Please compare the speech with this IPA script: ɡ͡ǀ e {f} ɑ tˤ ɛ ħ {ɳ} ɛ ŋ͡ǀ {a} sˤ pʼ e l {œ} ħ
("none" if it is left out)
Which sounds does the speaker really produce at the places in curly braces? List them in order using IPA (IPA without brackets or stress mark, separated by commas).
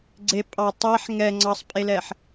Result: pʼ, ŋ, ɑ, ɛ